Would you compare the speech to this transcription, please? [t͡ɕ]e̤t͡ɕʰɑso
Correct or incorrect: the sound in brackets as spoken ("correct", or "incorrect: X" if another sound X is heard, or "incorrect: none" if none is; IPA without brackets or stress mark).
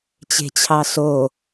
correct